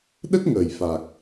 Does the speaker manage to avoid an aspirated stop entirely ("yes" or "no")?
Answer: yes